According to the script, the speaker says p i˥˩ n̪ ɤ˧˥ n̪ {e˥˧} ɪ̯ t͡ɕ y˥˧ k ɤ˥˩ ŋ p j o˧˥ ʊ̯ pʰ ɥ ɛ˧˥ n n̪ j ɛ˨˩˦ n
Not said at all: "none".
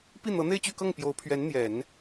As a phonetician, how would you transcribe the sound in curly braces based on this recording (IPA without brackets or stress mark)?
e˥˧